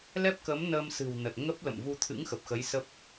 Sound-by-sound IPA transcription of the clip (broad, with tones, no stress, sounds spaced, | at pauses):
l ɛ˦˥ p̚ k ə˨˦ m n əː˧ m s ɨ̤˨˩ w n ə˨˩ t̚ ŋ ə˦˥ p̚ l ə̰˧˨ m v u˧ t̪ʰ ɨ̰˧˥ ŋ x ə˨˩ p̚ x ə˨˦ j s ə˦˥ p̚